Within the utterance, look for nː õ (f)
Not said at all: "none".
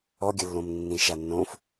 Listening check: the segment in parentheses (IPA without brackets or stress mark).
f